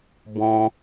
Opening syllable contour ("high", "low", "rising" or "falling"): high